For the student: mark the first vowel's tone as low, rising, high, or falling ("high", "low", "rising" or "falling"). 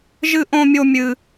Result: high